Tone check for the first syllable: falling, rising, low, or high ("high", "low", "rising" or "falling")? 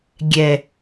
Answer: low